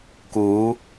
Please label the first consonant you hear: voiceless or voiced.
voiceless